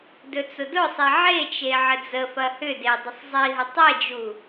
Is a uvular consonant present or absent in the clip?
absent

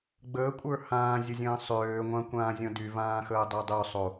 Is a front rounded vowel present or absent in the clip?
present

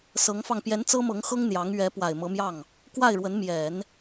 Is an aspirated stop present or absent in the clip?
absent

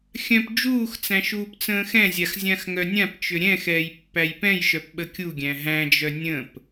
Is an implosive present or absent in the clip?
present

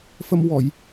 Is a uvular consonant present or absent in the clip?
absent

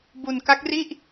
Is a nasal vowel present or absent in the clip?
absent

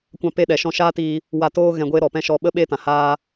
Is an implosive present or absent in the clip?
present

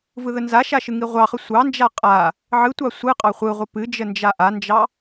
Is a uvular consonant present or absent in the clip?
present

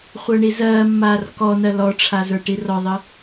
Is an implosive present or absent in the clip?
absent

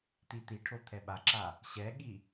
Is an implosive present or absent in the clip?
present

